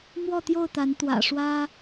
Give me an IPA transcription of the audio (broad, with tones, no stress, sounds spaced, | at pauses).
m w ɔ˥˨ t̪ j o˥˨ ʊ̯ t̪ a˨˦ n t̪ w ä̰˨˩ ʂ w ä˦